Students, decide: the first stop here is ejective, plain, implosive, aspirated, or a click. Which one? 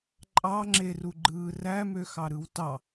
click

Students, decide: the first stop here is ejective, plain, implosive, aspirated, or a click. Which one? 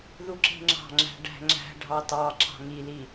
click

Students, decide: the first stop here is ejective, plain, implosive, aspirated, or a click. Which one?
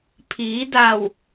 aspirated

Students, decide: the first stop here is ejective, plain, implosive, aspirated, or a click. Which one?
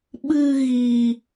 implosive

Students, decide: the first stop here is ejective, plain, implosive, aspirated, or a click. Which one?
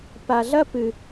plain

